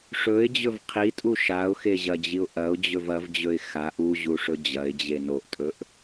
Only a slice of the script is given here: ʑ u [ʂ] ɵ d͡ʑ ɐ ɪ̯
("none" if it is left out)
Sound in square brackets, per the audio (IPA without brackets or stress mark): ʂ